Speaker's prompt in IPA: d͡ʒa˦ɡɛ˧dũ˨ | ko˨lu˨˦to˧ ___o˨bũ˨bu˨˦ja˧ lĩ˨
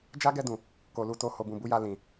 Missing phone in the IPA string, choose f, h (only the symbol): h